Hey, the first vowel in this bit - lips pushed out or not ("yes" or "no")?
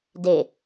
no